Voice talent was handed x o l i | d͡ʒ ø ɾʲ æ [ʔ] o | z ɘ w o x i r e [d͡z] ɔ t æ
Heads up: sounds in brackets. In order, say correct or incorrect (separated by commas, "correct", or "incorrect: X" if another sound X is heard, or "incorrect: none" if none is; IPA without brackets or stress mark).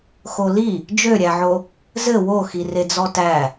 incorrect: ʕ, correct